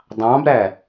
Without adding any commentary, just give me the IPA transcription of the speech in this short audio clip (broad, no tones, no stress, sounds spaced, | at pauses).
dˤ ɑ̃ b ɾ æ